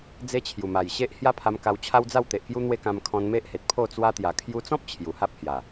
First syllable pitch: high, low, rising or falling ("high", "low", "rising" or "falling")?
high